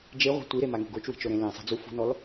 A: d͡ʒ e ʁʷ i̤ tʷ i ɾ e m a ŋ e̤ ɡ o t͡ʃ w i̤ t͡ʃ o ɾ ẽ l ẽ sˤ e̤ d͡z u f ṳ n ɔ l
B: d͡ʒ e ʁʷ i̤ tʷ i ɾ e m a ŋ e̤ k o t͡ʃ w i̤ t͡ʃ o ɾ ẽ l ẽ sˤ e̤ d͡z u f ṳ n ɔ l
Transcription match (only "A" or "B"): A